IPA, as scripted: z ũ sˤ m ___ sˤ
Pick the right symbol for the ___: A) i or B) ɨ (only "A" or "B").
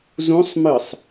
B